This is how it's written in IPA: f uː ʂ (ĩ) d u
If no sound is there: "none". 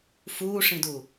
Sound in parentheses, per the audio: ĩ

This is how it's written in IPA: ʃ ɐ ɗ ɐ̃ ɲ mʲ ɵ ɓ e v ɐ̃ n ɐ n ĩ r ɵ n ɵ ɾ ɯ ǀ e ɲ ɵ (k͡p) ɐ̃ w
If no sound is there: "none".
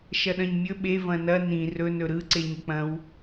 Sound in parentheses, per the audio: k͡p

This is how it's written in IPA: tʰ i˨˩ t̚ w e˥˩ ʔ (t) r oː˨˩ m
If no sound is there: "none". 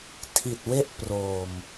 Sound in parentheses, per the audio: p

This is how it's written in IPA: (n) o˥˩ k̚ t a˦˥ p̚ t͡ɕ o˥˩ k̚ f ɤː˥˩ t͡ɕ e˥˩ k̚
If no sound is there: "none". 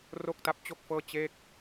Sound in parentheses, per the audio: r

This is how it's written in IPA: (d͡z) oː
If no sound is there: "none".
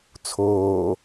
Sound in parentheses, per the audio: t͡sʰ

